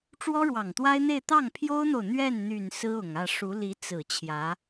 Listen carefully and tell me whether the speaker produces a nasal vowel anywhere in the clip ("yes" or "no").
no